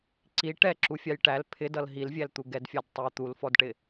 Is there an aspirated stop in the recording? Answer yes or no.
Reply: yes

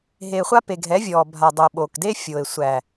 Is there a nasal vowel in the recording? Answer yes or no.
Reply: no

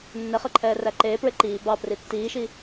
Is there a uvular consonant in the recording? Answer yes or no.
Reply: yes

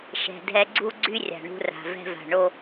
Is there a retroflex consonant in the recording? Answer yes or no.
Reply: yes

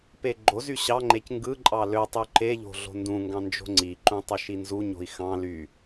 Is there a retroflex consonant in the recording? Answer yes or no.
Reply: no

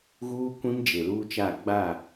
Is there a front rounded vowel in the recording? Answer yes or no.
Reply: no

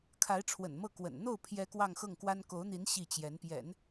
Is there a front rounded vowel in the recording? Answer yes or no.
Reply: no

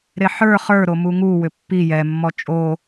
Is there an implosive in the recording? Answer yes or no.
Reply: no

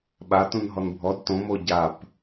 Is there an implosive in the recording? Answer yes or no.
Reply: yes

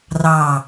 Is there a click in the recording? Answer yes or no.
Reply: no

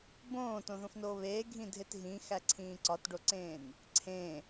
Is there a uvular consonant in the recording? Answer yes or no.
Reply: no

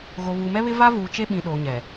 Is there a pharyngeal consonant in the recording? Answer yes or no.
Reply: no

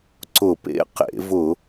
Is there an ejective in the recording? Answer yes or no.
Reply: no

